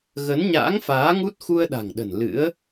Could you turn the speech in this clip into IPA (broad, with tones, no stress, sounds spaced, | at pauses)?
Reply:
ɣ ə˨˦ n ɲ a̰ː˧˥ ŋ f aː˨˦ ŋ u˦˥ t̚ x u˧ ə̯ ɗ a̤˨˩ ŋ ɗ ə̤˨˩ n l ɨ̰˧˥ ə̯